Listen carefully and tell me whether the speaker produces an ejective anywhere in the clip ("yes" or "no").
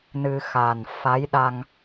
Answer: no